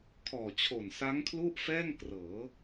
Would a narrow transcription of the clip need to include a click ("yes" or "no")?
no